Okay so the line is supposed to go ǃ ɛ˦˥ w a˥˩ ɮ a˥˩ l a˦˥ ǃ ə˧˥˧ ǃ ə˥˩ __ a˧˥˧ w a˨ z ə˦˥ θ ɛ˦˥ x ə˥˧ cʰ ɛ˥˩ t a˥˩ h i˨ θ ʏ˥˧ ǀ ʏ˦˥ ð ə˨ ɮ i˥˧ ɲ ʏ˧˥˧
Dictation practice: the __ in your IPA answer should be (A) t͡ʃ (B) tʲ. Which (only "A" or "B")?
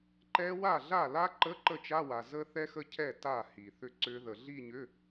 A